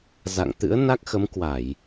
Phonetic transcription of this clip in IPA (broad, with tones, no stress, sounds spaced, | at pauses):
z a̰˧˨ ŋ t̪ ɨ̰˧˥ ə̯ n a˦˥ k̚ x ə˨˦ m k w a˧˩˨ j